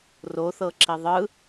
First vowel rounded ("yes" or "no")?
yes